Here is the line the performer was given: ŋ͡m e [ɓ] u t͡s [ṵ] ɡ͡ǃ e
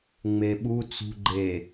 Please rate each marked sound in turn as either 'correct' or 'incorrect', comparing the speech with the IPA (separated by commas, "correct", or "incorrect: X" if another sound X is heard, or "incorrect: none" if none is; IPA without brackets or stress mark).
correct, incorrect: ṳ